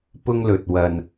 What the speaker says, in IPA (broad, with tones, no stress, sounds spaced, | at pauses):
p ʊ˧ ŋ l ɵ˨ t̚ w ɐ˨ n